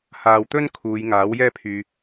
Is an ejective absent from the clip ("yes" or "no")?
yes